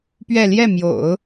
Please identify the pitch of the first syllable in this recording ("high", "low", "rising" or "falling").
falling